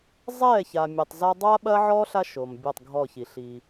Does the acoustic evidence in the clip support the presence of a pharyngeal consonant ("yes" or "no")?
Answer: yes